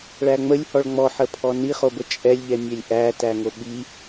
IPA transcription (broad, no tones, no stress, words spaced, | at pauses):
ɭæŋ͡məlʲhɔɭ ŋ͡mɔħə pʰɔniχobə t͡ʃʼɛlʲʎɛmʲɛlʲ ʔætæŋo ɓi